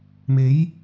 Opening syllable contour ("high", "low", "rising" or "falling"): rising